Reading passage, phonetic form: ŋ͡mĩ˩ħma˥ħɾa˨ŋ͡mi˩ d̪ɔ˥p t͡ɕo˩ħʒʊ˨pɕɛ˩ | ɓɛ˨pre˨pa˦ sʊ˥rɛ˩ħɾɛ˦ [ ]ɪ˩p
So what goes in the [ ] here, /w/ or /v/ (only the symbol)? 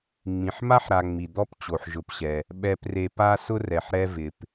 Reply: v